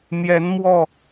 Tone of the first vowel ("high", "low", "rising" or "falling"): rising